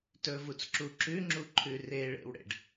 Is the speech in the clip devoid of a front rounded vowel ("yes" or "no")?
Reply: yes